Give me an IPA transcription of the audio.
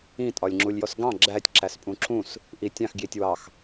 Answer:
ĩ tʼ ɒ lʲ ŋ͡ǁ u lʲ j ɔ s ɡ ɑ̃ ɡ͡ǁ æ tʲ ǁ æ s pʼ ũ ǁ ũ s | ʔ i tʲ ɑ̃ x ɡ j i tʲ w ɑ x

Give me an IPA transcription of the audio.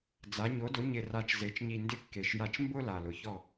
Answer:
d͡z a˩˧ ɲ o˩˧ d ʊ˩˧ ɲ ɪ˨˩ r a˨˩ t͡ʃ z e˩˧ t͡ʃ ɲ i˨˩ n d ɪ˥˧ kː e˨˩ ʃ j a˥˩ t͡ʃ m b ʊ˥˧ l a˨˩ l ʊ˩˧ ç ɔ˥˩

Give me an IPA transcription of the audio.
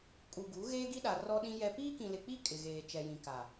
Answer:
kʼ u˨ ɡ u˨˦ ɣ eː˦ ɡ i˦ ɗ a˨ r ɔ˦ ɗ ĩ˦ j ɛ˦ p iː˦ k ĩ˨ l ɪ˨ k͡p i˦˨ kʼ ɪ˨ ɣ eː˨ t͡ʃ ɛ˨ j ĩ˨ k a˨

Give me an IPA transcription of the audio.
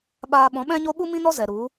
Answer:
ɓ aː˧ ɓ ɔ̃˨˦ ɓ ɛ̃˦ ɲ o˦ ɓ u˦ m ĩ˦ n ɔ˦ z ɛ˨ ɾ u˨˦

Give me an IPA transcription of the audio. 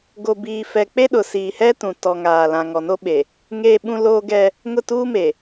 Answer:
ɡ o˨ b iː˨ f ɛ˨ k͡p e˦ ɗ ʊ˨ s iː˨ h ɛ˦ t ũ˨ t ɔ˨ ŋ aː˨ l ã˨ ŋ ɔ˨ n o˦ ɓ e˨ | ŋ eː˦ ɓ ũ˦ l oː˦ ɡ ɛ˦ | ŋ ʊ˦˨ t uː˦ m e˨

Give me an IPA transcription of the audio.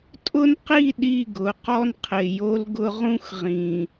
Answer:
tʼ ʊ˦ n q i˦˨ ɗ i˦˨ ɡ ʊ˨˦ q ɔ˦ n qʰ ɪ˨ j o˦ l ɡ ʊ˦ ʁ ũ˦ x ʁ ĩ˨

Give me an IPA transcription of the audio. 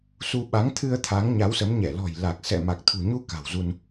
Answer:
s u˧ ɓ a˨˦ ŋ t̪ʰ ɨ˧ ə̯ t̪ʰ a˨˦ ŋ ɲ a˨˦ w s ə˨˦ m ɲ ɛ˧˩ l ɔ̤˨˩ j l a˨˩ k̚ s ɛ̰˧˨ m a˨˩ k̚ t̪ʰ ṳ˨˩ ɲ u˧ k a̤˨˩ w z u˧ n

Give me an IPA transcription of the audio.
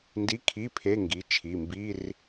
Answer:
n d i˧˥˧ kʰ i˧˥˧ pʰ e˧˥˧ ŋ ɡ i˩˧˩ t͡ʃʰ i˩˧˩ m b i˧˥˧ r

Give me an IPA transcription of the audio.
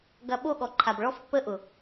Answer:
ɡ ɐ˧ ɓ o˦˨ ɠ ɔ˨ ǃʰ a˨ b ɭ ɔ˦ f pː ə˦ ʔ ʊ˨

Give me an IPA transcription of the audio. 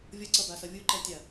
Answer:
vʲ ʌ ǀ ʌ b a s ʌ vʲ u ǃ ɛ tʲ a

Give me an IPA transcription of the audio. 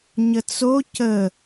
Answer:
ɲ ə t͡s o c ə

